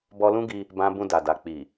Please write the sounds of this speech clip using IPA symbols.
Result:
bɔ˧lũ˦ɡi˧ | bã˧bũ˧da˨da˨ k͡pi˨

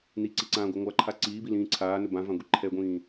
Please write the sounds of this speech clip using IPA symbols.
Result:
niǀiǀãːɡʷɛ ŋʷaǃʰa ǀiːbilĩː ǀʰaːnɵ bãvãɡʷi ǃʰɛɡʷĩː

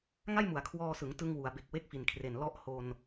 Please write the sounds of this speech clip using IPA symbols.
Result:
ŋa˥˩jmu˩˦a̯kʰwɔː˧sɯ˩˦ŋ tɯ˧ŋwu˩˦a̯be˨˩k̚ we˥˩k̚fi˨˩nkʰre˨˩n lɔ˦˥ʔho˧n

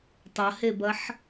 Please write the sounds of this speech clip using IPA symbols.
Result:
tˤɐhebɐħ

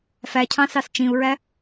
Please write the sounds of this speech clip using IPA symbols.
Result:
fæcʰɑ̃sɑs t͡ʃĩu̯ɹæ

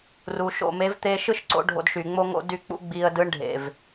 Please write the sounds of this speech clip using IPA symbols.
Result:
ru˨ʃo̰˦˨ me˨˦vt̪e˧ʃɯ˦ʃǀo̰˧ ɖʱo̰˧dʃy˨ŋ͡mo˦ ŋo̰˦ dy˦˨k͡pṵ˦ ɡ͡bi˧ə̯dɯ˦ɳ ɖʱḛ˨v

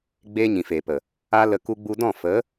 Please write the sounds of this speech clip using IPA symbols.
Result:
ɡ͡beː˦ɲĩ˨feː˨pə˨ | a˦lə˧ ku˧ɡ͡bu˧dɔ̃˦˨ fə˨˦

